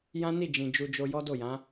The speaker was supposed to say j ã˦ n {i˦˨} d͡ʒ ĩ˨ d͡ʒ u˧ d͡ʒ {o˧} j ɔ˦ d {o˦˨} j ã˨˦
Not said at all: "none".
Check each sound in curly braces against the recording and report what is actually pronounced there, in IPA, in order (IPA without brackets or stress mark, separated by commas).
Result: i˦˨, o˧, o˦˨